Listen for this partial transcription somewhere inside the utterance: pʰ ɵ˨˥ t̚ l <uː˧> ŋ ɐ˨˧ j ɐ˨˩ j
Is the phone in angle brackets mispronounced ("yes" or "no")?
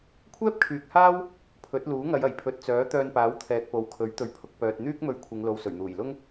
yes